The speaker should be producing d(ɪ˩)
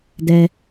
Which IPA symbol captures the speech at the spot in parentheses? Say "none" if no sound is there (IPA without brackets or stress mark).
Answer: ɛ˩